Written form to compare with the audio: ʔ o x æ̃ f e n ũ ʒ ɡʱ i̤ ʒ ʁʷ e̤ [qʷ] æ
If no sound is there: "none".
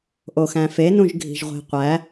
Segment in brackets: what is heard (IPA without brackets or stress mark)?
qʷ